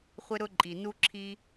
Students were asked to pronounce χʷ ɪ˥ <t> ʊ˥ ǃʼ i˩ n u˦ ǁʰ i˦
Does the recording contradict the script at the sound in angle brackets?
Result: yes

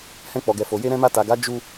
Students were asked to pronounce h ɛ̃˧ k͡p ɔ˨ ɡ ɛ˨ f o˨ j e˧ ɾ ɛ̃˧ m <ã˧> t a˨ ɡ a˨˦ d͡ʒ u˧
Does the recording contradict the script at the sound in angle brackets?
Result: yes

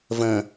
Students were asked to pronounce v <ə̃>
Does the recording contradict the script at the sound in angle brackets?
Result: no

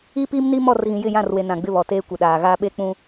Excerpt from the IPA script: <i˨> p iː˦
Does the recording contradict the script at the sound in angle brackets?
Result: yes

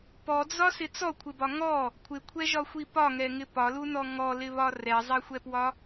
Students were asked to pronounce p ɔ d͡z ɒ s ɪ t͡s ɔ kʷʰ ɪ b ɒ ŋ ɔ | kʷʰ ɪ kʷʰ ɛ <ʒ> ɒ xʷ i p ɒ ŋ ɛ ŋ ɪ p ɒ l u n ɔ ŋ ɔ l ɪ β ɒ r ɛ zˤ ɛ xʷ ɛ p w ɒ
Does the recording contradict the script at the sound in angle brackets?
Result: no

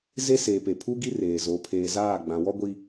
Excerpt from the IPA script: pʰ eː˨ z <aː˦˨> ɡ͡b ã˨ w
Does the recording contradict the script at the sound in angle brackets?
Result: no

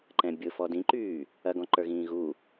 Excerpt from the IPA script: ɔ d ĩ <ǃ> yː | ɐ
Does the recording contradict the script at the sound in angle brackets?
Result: no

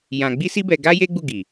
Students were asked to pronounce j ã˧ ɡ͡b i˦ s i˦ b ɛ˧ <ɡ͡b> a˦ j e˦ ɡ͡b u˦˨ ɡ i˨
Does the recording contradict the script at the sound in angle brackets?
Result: yes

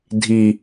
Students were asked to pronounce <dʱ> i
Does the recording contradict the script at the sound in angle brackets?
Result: no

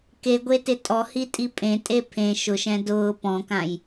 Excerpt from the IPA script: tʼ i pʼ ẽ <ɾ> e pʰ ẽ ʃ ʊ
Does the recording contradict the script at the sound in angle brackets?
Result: yes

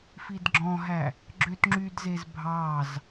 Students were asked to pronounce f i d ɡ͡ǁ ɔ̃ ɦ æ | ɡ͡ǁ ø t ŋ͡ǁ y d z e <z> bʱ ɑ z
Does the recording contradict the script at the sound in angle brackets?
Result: no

